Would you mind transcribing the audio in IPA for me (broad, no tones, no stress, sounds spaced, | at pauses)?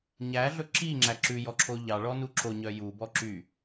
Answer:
ɲ æ ɮ ɵ ǁ i ŋ͡ǁ æ ǁ ʉ j ɔ ǁʰ o ʎ ɑ ɭ ɔ n u ǁ o ɲ œ j u b ɔ ǁ y